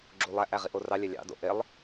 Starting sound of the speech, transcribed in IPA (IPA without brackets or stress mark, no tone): ɡ͡ǁ